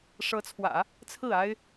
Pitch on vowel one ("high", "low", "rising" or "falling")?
rising